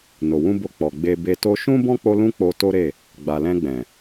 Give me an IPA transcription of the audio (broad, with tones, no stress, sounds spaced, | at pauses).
n o˨ w ũ˧ b o˧ k͡p ɔ˨ ɡ͡b e˧ b e˧ t o˦ ʃ ũ˦ b ɔ̃˦ k͡p o˧ l ũ˦ k͡p o˧ t o˦ ɾ e˦˨ | ɡ͡b a˨ l ɛ̃˧ ɡ͡b ɛ̃˨